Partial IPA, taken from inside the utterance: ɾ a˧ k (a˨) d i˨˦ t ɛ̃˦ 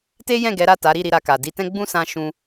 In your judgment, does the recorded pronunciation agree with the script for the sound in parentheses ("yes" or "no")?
yes